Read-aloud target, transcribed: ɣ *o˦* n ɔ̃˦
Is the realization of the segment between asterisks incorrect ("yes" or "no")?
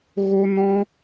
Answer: no